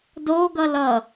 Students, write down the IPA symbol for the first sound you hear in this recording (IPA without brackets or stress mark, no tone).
d